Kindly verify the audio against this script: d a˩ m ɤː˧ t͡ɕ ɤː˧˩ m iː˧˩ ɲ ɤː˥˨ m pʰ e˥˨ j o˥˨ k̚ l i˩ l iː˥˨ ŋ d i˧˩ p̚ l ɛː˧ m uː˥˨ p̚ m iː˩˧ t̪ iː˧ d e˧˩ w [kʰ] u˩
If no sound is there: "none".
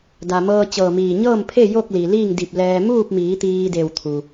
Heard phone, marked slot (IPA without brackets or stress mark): t̪ʰ